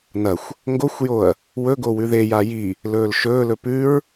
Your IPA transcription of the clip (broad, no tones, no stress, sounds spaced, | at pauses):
n ɐ xʷ | ŋ ɡ o xʷ j o ɐ̯ | w ɵ ɡ o w ʉ ð e j a j i | l ɵː l ʃ ɵː l ɵ p ʉ ɹ